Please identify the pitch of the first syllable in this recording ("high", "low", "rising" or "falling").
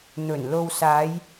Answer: low